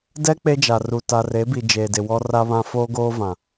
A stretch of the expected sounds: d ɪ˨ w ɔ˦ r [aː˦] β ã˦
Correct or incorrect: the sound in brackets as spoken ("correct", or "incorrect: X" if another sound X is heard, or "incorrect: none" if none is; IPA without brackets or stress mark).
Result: incorrect: a˦